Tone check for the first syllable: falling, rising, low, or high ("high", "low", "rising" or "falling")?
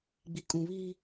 low